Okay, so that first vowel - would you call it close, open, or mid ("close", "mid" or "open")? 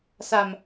open